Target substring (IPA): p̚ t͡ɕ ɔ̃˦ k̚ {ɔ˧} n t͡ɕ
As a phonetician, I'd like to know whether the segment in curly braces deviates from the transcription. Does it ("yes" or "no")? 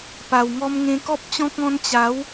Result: yes